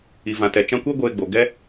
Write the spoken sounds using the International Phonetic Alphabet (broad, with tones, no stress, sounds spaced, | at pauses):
i˨ v ã˨ t ɛ˨ t͡ʃ ã˧ kʷ e˦ ɡʷ eː˧ ɡ͡b o˨ ɡ ɛ˦